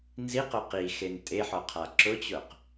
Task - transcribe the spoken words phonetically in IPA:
nziqʊ qixen tʼeħɔqʰa ǁʊt͡ɕʊq

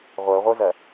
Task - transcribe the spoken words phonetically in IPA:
ʁʷə˞ʁʷə˞zɜ

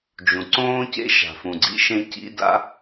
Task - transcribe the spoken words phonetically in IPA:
d͡ʒũ˨ǀõː˦cḛ˦ ʃa̤˨fũ˨ɡ͡ǀḭ˦ ʃẽ˧ cḭ˦ da̰˦

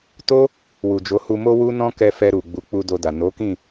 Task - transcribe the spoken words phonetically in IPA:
to˦ | wu˨d͡ʒo˨˦hu˧mo˦ wu˦nɔ̃˦kɛ˧fɛ˧ ɾu˨ ɡ͡bu˨˦k͡pu˧ do˧da˨ no˨˦kĩ˦˨

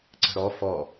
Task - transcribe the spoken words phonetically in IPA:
ǀə̤ɾɔ fɔ

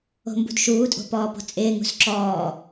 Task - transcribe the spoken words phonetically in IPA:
o̤mbṳdʃuːtʼo̤ pɔːpo̤t͡sʼɪːŋṳs ǁɔː

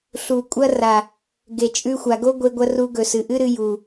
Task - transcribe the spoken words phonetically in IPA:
ɬu˨kʷʼɐ˧ra˨ | ɡe˨t͡ʃʼʉ˧xʷa˨ɡo˦ ɡʷe˧ɡʷɐ˧ ru˧ ɡɵ˨sɨ˨ʔɨ˦ɾɨ˧ ju˨

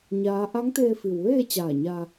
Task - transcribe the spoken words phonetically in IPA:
ɲaː˧˥ ʔa˧˥ŋt̪eː˧fi˩wʋeː˥˨ t͡ɕaː˧˩ɲa˧

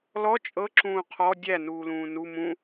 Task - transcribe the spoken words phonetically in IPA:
lɔ t͡ʃʼɤǁũː qʰɔ dʲænuːlũː nu mũ

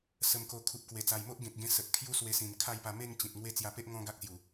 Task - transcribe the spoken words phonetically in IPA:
sə˧mko˧ kʰu˨p̚kwe˨˩ t͡sa˨˩jmo˦ʔɡẽ˨k̚ɡẽ˧ sə˨t̚kʰju˦swe˧sĩ˨˩n kʰa˥˧jpa˧ me˥˧ŋ t͡ɕĩ˨t̚ŋwe˦ t͡sja˧pe˦ʔ ŋɔ̃˧ ɡa˦k̚sju˨˩

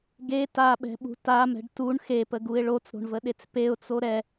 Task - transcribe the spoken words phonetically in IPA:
ɡe taɓɛ̤ɓṳ tamɛ̤ɖ tuɳ xepəɡuɪ̯ ɭot͡sɾo̤ɳvəɗet͡s peʊ̯t͡so ɾɛ

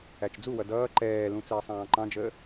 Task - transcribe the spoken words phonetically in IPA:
æt͡ʃd͡zuwʌ dʌː ǃɛːlũ t͡sɛːsˤɑ̃ːǃɑ̃d͡ʒəː

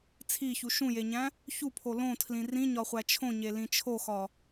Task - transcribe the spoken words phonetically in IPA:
t͡sʰiçu ʃũjeɲæ̃ | çupʰo lõtʰlĩ rĩɲɒχʷæ t͡ʃʰõɲelĩ t͡ʃʰoxɒ

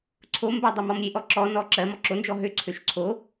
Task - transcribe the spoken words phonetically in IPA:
ǀʰombɜ dˤømɔmɾʲeʔɔ ǁɔnɔ ǁɜmɔ ǁond͡ʒɔ ɦøǀʰøʃ ǀʰo

